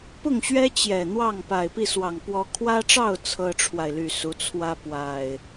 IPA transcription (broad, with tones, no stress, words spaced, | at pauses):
pʊ˥˨ŋɕɥɛ˦ t͡ɕjɛ˨˩ n̪wɑ˥˨ŋpa˨˩ɪ̯pi˥˨swɑ˨˩ŋ pwɔ˨˦kʰwä˦ʈ͡ʂɑ˥˨ʊ̯ t͡sʰɤ˦ʈ͡ʂʰwa˨ɪ̯ly˨˩ su˨˦t͡sʰwä˦pwa˨˩ɪ̯